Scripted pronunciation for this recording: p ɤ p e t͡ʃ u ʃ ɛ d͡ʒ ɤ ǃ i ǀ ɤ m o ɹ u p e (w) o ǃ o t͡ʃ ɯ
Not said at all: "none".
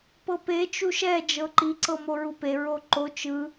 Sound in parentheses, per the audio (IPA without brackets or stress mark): ɹ